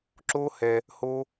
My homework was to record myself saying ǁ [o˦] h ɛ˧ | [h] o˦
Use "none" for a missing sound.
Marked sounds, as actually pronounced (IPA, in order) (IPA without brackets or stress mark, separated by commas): o˦, h